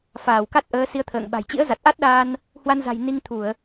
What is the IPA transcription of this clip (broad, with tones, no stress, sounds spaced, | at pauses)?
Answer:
f aː˧˩ w k a˦˥ t̚ ʔ əː˨˦ s i˨˦ ə̯ t̪ʰ ə̰ː˧˨ ŋ ɓ a̤˨˩ j t͡ɕ ḭ˧˥ ə̯ z a˨˩ t̚ ʔ a˦˥ t̚ ɗ aː˧ n | h w a˧ n z a̤˨˩ j n i˧ ŋ t̪ʰ u˧˩˨ ə̯